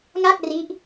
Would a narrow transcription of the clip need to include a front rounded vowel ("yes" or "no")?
no